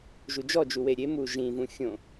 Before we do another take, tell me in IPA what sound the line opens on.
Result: ʒ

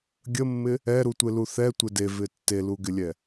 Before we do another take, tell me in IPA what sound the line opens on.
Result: ɡʲ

